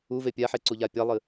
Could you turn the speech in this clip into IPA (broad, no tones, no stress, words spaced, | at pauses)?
uve pʲaħeǀuʎa pʲalˠɨ